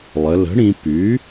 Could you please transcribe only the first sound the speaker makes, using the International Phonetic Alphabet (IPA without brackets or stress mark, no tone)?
lˠ